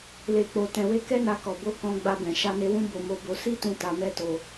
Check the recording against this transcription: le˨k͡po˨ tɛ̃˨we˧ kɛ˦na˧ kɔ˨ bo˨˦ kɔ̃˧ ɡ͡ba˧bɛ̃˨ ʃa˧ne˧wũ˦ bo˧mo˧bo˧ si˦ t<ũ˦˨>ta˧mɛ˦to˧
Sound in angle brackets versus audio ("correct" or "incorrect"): incorrect